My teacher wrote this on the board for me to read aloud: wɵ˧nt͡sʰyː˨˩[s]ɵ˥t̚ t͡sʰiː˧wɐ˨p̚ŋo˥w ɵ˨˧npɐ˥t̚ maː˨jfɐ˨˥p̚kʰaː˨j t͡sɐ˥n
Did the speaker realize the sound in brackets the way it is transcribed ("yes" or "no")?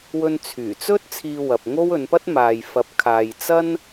no